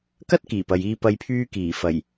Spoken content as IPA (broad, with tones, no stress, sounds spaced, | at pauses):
k ɐ˥ t̚ k iː˨˩ p ɐ˨ j iː˧ p ɐ˧ j pʰ yː˧ k iː˨˩ f ɐ˨˩ j